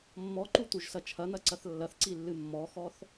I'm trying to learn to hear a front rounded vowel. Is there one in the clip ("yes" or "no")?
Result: no